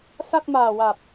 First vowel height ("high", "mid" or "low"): low